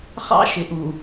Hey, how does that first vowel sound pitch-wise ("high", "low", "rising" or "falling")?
high